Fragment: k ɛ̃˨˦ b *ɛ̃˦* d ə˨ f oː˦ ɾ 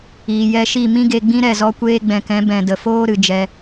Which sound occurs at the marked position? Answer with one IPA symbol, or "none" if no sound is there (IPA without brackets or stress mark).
ɛ̃˨